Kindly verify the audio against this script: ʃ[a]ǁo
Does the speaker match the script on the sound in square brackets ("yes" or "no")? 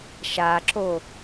yes